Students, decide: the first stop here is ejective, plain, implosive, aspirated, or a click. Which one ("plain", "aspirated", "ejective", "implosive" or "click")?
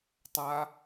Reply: plain